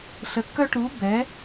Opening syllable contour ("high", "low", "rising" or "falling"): rising